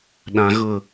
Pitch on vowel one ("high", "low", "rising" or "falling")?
low